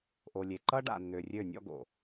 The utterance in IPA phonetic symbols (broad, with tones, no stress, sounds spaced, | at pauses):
ʔ o˨ lʲ e˨ ǃ ʌ˦ ɖ a̰˨ nː ø˨ rʲ ø˦˨ nʲ ɔ̰˦ ɡ o̰˨